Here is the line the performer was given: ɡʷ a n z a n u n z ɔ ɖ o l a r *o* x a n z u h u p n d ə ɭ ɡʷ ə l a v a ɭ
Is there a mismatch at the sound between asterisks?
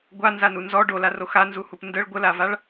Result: no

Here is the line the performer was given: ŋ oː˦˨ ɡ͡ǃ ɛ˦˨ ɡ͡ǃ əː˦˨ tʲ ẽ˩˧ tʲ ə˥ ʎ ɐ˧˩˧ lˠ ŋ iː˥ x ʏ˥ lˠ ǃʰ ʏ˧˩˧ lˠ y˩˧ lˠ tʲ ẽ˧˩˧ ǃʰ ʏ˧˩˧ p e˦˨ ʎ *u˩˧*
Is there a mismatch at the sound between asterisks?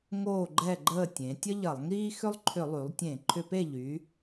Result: yes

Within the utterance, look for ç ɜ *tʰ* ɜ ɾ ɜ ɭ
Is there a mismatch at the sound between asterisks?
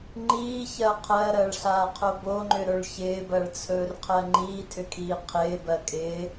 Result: yes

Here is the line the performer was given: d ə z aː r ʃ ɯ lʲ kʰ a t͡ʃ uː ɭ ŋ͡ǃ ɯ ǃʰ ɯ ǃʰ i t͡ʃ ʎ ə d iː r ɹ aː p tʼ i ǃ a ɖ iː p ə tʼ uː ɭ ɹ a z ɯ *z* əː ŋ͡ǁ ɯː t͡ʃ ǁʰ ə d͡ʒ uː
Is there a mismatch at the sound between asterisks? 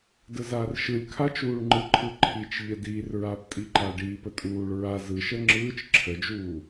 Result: yes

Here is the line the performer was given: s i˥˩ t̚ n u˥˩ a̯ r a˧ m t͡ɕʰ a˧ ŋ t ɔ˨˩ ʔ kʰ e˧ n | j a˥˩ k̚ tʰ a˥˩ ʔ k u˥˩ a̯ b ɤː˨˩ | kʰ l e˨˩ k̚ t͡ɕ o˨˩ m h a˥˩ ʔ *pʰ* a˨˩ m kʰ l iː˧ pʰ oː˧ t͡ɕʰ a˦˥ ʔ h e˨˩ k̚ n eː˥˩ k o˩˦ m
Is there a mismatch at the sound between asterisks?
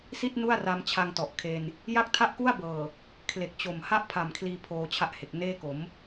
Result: no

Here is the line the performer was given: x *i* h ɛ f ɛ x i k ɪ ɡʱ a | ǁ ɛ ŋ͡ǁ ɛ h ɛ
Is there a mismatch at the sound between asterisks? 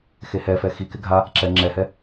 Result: yes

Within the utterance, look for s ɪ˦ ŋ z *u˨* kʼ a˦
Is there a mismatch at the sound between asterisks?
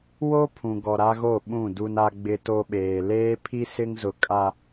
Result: yes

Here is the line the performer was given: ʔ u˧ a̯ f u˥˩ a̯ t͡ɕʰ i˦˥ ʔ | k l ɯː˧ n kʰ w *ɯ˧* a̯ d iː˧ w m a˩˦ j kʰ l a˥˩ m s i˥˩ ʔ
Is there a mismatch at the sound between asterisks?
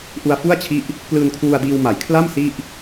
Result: yes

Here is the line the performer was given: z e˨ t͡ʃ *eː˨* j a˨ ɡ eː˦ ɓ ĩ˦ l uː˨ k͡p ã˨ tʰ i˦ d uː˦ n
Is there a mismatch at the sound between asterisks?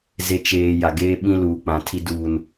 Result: no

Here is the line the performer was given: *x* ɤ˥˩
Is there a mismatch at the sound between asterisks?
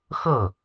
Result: no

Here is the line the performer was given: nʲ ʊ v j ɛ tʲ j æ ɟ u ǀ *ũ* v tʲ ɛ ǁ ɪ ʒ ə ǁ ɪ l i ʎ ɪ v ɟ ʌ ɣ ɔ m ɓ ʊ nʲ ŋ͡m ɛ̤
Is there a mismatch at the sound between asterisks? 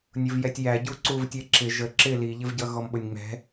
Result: yes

